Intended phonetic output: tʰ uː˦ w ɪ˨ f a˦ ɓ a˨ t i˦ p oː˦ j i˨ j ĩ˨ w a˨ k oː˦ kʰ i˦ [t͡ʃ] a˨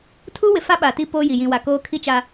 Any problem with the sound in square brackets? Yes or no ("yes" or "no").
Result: no